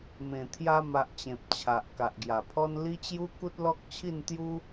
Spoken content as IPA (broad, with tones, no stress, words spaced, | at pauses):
mẽ˨˩ t̪ʰja˧ma˨ʔ t͡ɕẽ˨p̚t͡ɕʰa˨ʔ ka˨ʔɡja˨˩pʰɔ˦n li˦t͡ɕju˦ ku˦t̚lɔ˦k̚t͡ɕʰi˥˧n t̪ju˦